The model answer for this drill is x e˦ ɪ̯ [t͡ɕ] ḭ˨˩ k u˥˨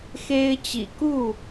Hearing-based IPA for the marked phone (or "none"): t͡ɕ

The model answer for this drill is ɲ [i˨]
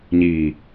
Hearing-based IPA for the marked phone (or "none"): i˨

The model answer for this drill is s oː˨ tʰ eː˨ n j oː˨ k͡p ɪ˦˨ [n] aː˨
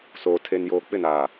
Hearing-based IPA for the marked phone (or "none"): n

